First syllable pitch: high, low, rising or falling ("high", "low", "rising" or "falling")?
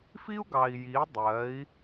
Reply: high